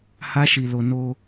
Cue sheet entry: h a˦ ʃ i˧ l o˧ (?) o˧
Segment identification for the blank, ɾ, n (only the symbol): n